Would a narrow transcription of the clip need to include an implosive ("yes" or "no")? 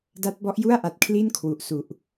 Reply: no